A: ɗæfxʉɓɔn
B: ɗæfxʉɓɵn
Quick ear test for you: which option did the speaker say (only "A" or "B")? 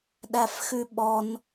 A